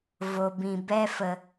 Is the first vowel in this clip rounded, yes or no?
yes